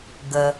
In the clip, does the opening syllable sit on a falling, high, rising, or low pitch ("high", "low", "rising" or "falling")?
low